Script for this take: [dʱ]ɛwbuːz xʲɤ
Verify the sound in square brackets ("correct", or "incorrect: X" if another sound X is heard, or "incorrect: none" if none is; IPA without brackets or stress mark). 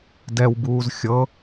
incorrect: d